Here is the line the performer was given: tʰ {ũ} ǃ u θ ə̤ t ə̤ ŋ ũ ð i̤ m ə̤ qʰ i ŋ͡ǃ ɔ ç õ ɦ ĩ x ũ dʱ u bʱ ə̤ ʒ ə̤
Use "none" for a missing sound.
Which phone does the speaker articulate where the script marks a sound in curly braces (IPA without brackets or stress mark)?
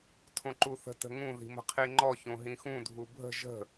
õ